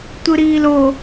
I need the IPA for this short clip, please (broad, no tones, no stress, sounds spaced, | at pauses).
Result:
tʷ ɯ ɾ iː l o